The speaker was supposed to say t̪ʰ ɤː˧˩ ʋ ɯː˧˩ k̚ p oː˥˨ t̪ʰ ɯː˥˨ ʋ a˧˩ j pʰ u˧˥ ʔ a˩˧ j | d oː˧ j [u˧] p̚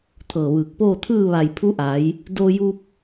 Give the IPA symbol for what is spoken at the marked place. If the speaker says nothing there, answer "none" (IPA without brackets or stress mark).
u˧